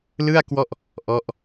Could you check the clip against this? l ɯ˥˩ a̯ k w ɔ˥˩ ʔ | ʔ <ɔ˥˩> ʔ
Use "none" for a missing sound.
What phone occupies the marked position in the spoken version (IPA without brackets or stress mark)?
ɔ˦˥